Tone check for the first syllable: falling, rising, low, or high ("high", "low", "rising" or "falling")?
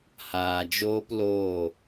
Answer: low